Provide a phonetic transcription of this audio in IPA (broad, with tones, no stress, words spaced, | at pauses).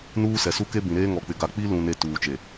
nuː˦sɛ˨su˦ke˦ bĩ˨ɾeː˦ ŋɔ˨k͡pɪ˨ɡa˨ k͡pi˦ lũ˨ne˨ tuː˨t͡ʃe˨